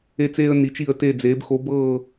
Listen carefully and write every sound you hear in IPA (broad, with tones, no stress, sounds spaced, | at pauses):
e˧ t͡s eː˧ ə̯ n i˩˧ t͡ʃ i˧˩ ə̯ t e˧˩ d͡z eː˩˧ b x o˩˧ b ɤː˧˩